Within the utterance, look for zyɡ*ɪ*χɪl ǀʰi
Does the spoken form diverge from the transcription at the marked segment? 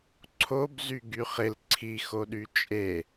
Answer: yes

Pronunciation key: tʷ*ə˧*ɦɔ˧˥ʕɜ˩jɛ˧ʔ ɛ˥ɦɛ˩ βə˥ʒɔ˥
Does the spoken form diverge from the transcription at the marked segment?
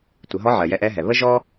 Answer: yes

